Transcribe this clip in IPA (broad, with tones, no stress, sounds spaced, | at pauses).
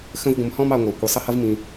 x ə̃˦ v ɡʷ ə̃˨ m h ɔ̃˦ m ɑ˨ ŋʷ æ˩ kʷ i˩ sˤ ə˥ h ʌ˥ v m ĩ˨